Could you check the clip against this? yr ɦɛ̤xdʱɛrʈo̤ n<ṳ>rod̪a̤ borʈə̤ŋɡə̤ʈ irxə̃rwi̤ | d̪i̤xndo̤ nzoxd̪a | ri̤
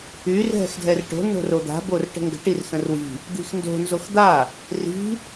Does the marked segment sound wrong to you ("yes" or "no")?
yes